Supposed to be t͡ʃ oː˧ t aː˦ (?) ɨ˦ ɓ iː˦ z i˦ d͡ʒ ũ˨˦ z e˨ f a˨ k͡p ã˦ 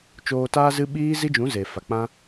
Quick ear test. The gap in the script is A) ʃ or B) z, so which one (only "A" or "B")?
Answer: B